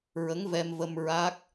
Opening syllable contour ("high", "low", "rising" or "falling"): rising